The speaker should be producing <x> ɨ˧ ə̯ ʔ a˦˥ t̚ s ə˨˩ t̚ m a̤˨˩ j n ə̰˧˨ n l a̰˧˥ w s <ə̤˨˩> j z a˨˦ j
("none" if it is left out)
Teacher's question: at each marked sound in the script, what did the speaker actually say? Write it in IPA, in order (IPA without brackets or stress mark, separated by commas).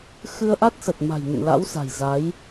x, a̤˨˩